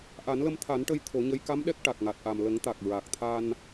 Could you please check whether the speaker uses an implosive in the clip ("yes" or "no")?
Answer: yes